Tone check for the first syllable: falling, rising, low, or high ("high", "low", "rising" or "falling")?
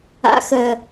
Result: low